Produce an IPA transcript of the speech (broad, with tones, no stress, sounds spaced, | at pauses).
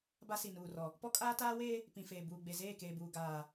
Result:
b a˦ s i˨ n uː˨ r ɔ˨ | p ɔ˦ kʼ aː˦ t aː˦ w eː˦ | p ĩ˨ f eː˨ b uː˨ ɡ͡b e˨ z eː˦˨ k eː˨ b uː˨ ɡ aː˨